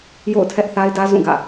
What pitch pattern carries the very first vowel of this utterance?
falling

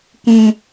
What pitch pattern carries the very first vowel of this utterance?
high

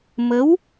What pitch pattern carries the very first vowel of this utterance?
rising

